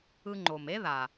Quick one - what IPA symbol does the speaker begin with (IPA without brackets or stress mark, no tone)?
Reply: ɯ